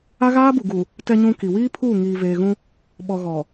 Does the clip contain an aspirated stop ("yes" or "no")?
yes